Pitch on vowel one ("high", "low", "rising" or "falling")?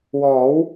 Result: rising